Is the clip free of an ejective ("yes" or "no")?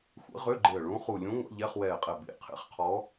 no